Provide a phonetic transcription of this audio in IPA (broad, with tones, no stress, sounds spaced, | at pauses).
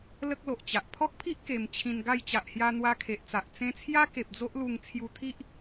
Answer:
l ə˦ k̚ l o˨ ʔ t͡ɕ a˨ ʔ pʰ ɔ˦ k̚ pʰ i˦ ʔ k e˧ m t͡ɕʰ ĩ˧ n ɡ a˥˧ j t͡ɕ a˨ ʔ h j a˧ n̪ w a˧ kʰ e˨ ʔ t͡s a˨ ʔ t͡s ẽ˧ t͡sʰ j a˦ k e˨ p̚ d͡z o˦ ʔ l u˧ ŋ t͡sʰ j u˧ t̪ʰ i˦ ʔ